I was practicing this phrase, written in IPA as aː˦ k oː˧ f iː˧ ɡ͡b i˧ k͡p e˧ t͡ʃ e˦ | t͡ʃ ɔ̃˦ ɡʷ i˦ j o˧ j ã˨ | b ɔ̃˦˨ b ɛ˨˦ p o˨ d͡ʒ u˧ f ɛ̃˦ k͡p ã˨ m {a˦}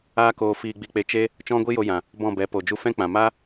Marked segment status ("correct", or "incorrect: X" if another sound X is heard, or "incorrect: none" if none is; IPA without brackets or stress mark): correct